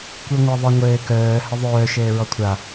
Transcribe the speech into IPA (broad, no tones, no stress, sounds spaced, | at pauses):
kʷ i ŋʷ a ðˤ ɘ ŋʷ ɘː k œː h ɘ ðˤ œː ʃ ɘː ɹ ɔ kʷʰ a